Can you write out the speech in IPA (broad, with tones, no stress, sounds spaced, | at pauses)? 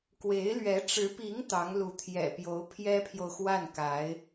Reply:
k w e˧˥ ɪ̯ l ɥ ɛ˧˥ ʈ͡ʂ ɻ̩˧˥ p i˧˥ ŋ t̪ ɑ˧˥ ŋ l u˧˥ t̪ʰ j ɛ̰˨˩ p j o˧˥ ʊ̯ pʰ j ɛ˥ pʰ j o˨ ʊ̯ x w a˥˩ n k a˧˥ ɪ̯